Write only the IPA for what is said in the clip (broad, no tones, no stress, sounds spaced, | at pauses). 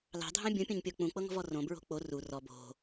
l ɑ̤ dʱ ɑ̃ bʲ ũ pʲ õ ɲ pʲ ɤ k͡p ũ k͡p ɤ ŋ ɔ̤ v ɔ r õ b ɹ o̤ k͡p o r u r ɔ b o̤